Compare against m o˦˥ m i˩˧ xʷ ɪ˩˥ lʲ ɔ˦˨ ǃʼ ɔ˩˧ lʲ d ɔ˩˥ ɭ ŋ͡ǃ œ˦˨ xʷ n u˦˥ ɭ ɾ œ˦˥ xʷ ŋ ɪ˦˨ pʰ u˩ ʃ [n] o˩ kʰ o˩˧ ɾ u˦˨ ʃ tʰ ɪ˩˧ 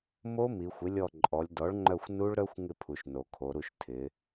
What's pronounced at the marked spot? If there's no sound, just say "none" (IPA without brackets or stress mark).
n